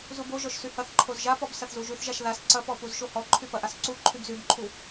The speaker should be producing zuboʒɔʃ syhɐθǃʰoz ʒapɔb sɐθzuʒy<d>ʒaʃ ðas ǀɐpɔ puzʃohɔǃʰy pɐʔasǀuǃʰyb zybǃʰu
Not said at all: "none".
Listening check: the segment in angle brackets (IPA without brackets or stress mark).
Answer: θ